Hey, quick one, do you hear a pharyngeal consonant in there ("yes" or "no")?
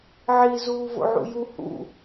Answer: yes